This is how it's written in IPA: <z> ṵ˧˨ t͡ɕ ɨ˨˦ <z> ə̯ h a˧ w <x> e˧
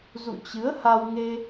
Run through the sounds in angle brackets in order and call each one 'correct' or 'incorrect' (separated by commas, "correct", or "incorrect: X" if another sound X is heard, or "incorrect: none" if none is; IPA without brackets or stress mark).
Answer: correct, incorrect: none, incorrect: ŋ